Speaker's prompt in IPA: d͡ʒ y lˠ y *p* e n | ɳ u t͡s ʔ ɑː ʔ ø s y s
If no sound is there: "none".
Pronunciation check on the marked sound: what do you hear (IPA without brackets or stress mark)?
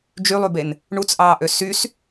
b